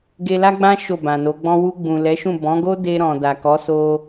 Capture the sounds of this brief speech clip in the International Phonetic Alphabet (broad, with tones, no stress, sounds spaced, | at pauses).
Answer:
ɡ e˧ l a˦ ɡ͡b ã˦ ʃ o˦˨ b ã˨ n o˨˦ ɡ͡b ɔ̃˦ w u˧ ɡ͡b ũ˨ l ɛ˨˦ ʃ ũ˦˨ b ɔ̃˨˦ ɡ o˦ d e˧ ɾ ɔ̃˨ d a˨ k ɔ˨˦ s o˧